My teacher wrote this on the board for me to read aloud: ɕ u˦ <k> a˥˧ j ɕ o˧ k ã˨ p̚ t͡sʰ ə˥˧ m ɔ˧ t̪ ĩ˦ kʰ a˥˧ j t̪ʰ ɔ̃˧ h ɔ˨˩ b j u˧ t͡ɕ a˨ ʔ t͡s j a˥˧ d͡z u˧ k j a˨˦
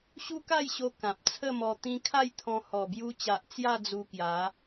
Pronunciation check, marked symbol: correct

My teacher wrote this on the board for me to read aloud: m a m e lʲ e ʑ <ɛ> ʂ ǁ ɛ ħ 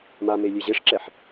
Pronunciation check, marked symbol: incorrect: e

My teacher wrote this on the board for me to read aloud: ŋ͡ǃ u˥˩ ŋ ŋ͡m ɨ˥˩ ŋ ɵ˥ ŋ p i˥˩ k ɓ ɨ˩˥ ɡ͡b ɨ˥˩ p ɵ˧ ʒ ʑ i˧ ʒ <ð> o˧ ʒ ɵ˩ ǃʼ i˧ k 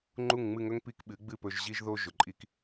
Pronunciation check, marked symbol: correct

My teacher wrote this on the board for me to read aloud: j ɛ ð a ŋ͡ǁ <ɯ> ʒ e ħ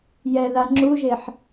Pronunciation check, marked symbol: incorrect: u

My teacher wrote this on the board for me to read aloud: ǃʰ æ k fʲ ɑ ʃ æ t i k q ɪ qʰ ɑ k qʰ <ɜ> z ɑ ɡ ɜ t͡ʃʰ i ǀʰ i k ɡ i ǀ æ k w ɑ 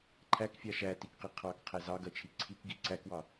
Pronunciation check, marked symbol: incorrect: æ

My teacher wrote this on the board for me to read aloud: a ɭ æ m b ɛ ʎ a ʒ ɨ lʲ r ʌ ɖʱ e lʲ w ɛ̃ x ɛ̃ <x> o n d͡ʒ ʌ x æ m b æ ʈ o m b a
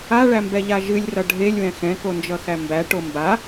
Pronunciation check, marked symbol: incorrect: k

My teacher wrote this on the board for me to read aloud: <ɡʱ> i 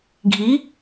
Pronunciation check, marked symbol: correct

